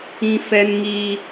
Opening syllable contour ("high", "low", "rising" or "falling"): high